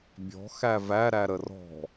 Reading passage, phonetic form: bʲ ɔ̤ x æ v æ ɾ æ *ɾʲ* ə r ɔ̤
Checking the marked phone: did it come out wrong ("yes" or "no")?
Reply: yes